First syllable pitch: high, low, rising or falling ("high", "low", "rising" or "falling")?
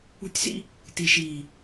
high